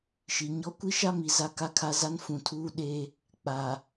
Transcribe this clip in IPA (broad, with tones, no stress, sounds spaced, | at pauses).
ʃ i˨ ɲ ɔ˦ kʷ i˦ ʃ a˦ m i˨ z a˦ k a˦ kʰ a˦ z a˦ n f ũ˨ tʰ uː˦ ɗ eː˦ | k͡p aː˨